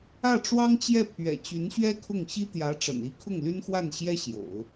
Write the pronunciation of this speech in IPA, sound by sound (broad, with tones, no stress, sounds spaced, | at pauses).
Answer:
ä˥˩ ʈ͡ʂ w ɑ˥ ŋ t͡ɕ j ɛ˥˩ pʰ ɥ ɛ̰˨˩ t͡ɕ y˧˥ n ɕ ɥ ɛ˥ kʰ ʊ˥˩ ŋ ɕ i˥ t̪ j ä˧˥ ʈ͡ʂ ə̰˨˩ n i˥ kʰ ʊ˥˩ ŋ l y˥ n x w a˥˩ n ɕ j ɛ˥ ɕ j o̰˨˩˦ ʊ̯